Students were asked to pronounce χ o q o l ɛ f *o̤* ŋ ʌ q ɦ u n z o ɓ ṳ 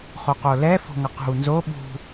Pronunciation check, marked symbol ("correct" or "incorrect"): correct